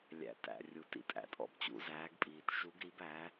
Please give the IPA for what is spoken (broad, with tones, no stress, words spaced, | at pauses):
lʲæ̰˩˧tæ̰˩ rʲu˩tḭ˩tʼæ̰˩tʼɔ̰˩˧b t͡ɕṵ˩˧zæː˩˧ɡpʼiː˩t ʃu˩˧ɡɾi˩˧b æ˩˧